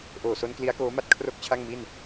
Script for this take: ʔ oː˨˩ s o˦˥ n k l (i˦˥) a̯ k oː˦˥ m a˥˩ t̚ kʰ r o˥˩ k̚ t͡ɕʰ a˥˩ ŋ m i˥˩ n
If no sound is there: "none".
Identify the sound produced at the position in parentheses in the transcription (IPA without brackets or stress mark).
i˦˥